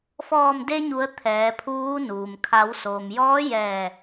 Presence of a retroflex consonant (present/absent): absent